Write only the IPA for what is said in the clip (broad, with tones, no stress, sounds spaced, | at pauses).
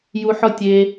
j u˧ ħ ɔ˦ tʲ e˧